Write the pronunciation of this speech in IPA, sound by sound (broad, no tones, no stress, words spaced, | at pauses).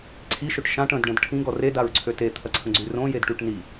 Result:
ǀʰiʃøʈ ʃãʈ ə̃dɖɐ̃d ʈʰĩɡɔ redaɹǀʰø tet̪ʰɐǀʰə̃ɡ͡ǀy rõjedʈyʈ ni